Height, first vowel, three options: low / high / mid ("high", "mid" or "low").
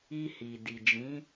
high